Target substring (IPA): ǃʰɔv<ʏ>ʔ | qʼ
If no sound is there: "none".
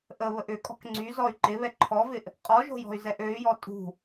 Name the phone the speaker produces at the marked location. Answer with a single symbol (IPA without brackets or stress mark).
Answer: ɪ